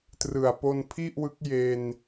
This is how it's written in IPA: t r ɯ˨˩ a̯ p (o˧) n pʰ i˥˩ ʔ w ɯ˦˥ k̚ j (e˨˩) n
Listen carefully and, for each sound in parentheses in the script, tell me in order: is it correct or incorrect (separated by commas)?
correct, incorrect